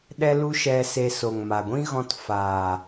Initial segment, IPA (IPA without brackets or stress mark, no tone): ɗ